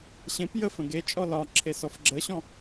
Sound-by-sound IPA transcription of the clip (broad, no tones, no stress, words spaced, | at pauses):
ɕẽp jəf ə̃ɡe t͡ʃʼɔlɒǁʰe sɔfɡ͡ǁəɕɔ̃